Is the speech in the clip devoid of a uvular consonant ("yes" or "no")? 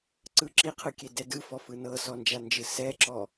no